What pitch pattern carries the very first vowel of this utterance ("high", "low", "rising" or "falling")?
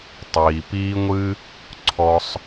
low